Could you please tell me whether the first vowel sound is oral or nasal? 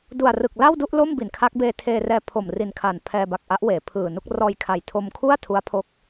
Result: oral